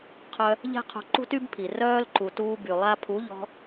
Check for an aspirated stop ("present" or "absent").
present